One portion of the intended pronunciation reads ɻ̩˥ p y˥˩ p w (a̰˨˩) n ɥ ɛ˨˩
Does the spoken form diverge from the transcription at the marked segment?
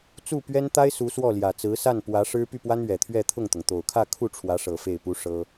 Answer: yes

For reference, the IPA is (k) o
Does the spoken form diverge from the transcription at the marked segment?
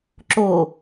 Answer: yes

